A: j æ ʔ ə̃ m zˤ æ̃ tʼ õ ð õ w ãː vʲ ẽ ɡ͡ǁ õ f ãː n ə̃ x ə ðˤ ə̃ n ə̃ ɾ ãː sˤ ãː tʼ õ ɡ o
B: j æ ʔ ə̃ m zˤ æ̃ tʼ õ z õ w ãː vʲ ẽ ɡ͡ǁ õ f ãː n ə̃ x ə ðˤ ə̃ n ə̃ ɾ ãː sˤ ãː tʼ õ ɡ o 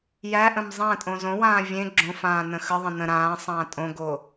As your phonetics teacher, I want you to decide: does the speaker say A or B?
B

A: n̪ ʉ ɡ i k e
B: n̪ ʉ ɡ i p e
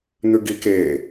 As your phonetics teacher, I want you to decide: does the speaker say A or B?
A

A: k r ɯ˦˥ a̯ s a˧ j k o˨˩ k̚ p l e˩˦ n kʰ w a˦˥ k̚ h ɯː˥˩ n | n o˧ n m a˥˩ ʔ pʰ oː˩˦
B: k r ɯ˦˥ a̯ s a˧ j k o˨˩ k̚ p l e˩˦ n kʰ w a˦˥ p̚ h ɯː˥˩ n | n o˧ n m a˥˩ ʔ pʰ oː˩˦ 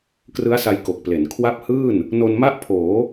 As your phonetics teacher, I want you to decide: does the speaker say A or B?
B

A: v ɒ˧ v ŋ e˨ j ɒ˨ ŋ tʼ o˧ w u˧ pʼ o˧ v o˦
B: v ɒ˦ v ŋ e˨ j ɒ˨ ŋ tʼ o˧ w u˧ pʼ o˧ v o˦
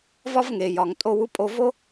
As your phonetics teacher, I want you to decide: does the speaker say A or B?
A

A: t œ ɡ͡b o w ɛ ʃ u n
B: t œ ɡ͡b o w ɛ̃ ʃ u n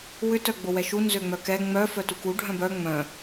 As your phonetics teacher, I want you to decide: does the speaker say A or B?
A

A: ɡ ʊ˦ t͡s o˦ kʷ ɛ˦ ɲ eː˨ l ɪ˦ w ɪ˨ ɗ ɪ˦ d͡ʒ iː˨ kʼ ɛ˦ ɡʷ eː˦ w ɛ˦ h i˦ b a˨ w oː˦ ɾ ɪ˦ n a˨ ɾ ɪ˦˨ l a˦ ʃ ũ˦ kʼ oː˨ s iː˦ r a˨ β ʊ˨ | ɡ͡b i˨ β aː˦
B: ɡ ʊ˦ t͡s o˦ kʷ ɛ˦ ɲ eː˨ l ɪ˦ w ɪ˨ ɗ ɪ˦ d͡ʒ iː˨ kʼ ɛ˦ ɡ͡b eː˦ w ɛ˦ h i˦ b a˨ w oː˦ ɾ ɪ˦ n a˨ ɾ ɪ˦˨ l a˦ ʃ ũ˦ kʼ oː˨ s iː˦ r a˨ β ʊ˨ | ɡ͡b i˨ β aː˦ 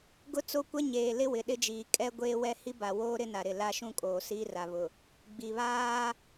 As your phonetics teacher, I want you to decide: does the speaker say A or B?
A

